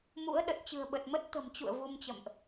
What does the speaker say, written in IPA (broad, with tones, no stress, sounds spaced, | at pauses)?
m ṵ˧˥ ə̯ ɗ ə˨˩ t̚ t͡ɕ ɨ̤˨˩ ə̯ ɓ ə˨˩ t̚ m ə˦˥ t̚ t̪ ə̤˨˩ m t͡ɕ ṵ˧˨ ə̯ v u˧ m t͡ɕ ə̰˧˨ m ʔ